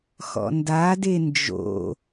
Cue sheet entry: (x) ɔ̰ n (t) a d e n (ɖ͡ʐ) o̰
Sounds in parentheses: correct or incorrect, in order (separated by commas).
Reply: correct, incorrect, incorrect